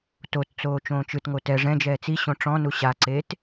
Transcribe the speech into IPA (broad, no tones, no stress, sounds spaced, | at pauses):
t o t t͡s oː t͡ʃ õː t͡ʃ ɯ t ŋ o t ɛ ʐ ɛ̃ d͡ʒ ɛː t͡s i ɕ õ ʈ͡ʂ ɔ̃ n u ɕ a ǀ eː t